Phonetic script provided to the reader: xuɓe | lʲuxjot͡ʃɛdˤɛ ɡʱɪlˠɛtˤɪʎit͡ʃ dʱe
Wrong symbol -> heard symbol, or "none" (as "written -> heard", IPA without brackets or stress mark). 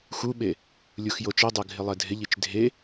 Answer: tˤ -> dʱ